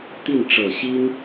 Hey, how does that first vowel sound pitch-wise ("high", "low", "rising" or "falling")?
falling